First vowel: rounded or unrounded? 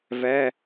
unrounded